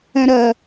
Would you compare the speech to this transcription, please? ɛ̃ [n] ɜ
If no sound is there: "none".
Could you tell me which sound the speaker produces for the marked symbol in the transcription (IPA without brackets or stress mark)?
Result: ɾ